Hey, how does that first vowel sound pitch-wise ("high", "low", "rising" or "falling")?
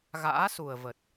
rising